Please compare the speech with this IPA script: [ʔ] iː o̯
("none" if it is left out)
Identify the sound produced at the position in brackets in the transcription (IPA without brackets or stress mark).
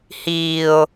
h